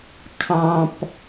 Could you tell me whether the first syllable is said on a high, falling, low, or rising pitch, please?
high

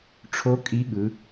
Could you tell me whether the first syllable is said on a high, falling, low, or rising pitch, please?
rising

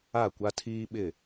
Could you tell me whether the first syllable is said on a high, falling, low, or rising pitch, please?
falling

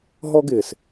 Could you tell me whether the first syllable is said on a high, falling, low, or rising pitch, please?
high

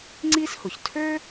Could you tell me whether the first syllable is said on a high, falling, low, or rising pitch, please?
high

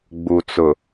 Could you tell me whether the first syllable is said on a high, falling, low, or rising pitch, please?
low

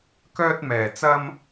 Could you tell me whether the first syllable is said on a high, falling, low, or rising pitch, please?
high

